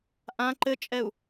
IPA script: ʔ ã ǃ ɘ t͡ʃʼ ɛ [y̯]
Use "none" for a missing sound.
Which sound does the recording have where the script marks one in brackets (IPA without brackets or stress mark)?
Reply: u̯